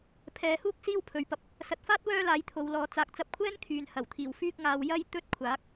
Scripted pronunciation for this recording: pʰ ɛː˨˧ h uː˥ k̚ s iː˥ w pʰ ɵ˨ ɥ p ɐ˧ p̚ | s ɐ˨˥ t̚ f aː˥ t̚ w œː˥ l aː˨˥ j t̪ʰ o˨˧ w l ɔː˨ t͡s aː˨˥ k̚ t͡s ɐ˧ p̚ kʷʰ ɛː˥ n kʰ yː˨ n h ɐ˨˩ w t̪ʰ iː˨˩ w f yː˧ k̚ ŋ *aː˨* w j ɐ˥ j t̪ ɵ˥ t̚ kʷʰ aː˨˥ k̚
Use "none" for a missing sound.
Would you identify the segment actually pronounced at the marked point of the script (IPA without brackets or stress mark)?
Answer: aː˨